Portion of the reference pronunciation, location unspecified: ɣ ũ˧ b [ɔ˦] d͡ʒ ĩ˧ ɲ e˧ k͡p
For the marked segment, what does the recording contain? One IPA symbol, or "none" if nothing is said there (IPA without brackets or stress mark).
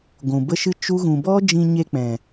ɔ˦